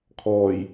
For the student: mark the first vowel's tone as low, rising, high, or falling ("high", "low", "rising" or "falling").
low